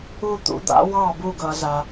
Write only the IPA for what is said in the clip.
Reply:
u˥˨ t̪ ṵ˨˥ d̪ a̰˨˥ w ɑ˥˨ b u˥˨ ɡ ʌ˩˧ z a˩

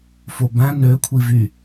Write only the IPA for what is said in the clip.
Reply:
f o b æ̃ n ø kʷʰ i v y

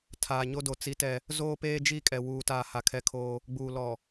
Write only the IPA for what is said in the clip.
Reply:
tʰ aː˨ ɲ o˦ d o˨ t͡s i˦ t ɛ˦ | z oː˦ p eː˦ d͡ʒ i˦˨ kʼ ɛ˨ w uː˨ t aː˨ h a˨ kʰ ɛ˦ kʰ oː˦ | ɡ͡b uː˨ l ɔ˨

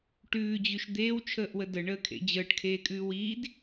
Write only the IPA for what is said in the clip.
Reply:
ʈ ʉː d͡ʑ ʉ ʃ d̪ eː w t͡ʃʰ əː ʔ w ə d ə ɳ əː kʰ ḛ d͡ʑ əː ʈ kʰ eː kʼ ʉː w iː d

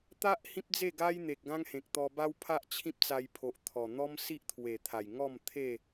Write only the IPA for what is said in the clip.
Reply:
t̪ a˦ ʔ h ĩ˦ p̚ d͡z e˥˧ ɡ a˦ j n̪ e˨ k̚ ɡ ã˦ ŋ h ẽ˨ k̚ t̪ ɔ˧ b a˦ w pʰ a˦ ʔ t͡ɕʰ ĩ˦ p̚ t͡s a˧ j pʰ o˨ ʔ t̪ʰ ɔ˨˩ n̪ ɔ˦ m s i˦ ʔ t̪ʰ w e˨˩ t̪ʰ a˨˩ j ŋ ɔ˥˧ m t̪ʰ e˥˧

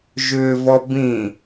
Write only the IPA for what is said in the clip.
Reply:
ʒ ʏː v ɔ b ĩ

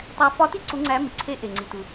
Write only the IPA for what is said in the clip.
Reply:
tˤ æ˧ f ɒ˧˥ t i˥ ǀ u˧˥ ŋ͡ǀ æ˧˥ m i˩ ǀʰ e˧˥ ʔ e˩ ŋ͡ǀ i˩ t u˩

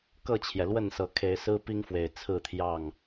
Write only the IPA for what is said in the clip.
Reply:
k ɤ˥˨ t͡ɕʰ j ɛ˩ l w ə˥˨ n s ɤ˨˦ kʰ e˨˦ ɪ̯ s ɹ̩˦ p i˦ ŋ f w e˨˩ ɪ̯ t͡sʰ ɹ̩˥˨ t̪ʰ j ɑ˥˨ ŋ

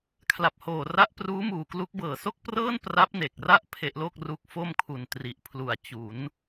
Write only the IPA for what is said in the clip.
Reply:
kʰ l a˨˩ p̚ h oː˨˩ r a˦˥ ʔ p r uː˦˥ m uː˨˩ k l u˦˥ k̚ b ɤː˨˩ s o˥˩ k̚ p r ɤː˥˩ n p r a˦˥ p̚ n e˨˩ k̚ r a˥˩ ʔ pʰ e˦˥ ʔ l o˥˩ k̚ r u˦˥ k̚ f o˥˩ m kʰ u˨˩ n t r i˨˩ ʔ pʰ l u˨˩ a̯ t͡ɕ u˩˦ n

